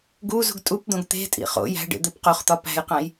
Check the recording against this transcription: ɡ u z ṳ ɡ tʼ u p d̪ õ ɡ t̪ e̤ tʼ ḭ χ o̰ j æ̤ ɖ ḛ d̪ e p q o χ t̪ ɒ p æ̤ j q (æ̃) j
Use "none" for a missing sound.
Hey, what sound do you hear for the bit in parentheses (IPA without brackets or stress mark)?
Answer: æ̃